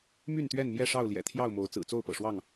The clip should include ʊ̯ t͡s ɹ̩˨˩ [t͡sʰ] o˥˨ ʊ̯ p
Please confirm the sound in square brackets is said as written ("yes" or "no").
no